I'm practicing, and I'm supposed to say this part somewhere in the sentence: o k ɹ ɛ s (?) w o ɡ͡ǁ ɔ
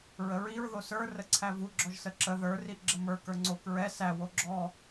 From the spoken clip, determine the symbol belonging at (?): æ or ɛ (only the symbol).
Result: æ